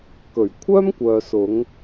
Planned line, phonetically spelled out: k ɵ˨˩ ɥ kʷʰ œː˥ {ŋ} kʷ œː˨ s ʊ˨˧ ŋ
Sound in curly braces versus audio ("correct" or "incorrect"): incorrect